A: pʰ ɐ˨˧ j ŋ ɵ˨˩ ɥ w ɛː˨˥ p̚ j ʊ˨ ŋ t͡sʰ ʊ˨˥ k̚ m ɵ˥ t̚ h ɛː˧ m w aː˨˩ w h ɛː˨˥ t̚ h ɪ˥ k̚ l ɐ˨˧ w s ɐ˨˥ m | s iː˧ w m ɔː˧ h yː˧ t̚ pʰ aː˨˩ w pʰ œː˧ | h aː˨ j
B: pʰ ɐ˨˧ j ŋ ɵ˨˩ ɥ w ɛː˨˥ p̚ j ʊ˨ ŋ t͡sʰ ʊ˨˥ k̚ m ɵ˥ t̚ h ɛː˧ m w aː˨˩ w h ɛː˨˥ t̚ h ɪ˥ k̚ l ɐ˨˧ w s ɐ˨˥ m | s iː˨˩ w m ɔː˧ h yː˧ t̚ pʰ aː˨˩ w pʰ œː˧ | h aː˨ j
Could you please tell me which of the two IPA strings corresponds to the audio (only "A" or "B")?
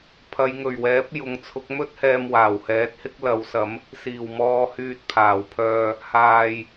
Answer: B